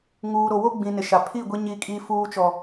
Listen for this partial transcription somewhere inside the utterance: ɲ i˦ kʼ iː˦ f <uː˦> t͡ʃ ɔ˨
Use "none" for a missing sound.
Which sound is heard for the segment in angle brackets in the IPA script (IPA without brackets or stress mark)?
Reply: uː˦